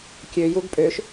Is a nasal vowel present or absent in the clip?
absent